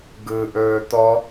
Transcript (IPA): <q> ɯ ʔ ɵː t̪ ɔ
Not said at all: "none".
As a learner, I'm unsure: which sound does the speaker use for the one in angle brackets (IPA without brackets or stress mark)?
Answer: ɡ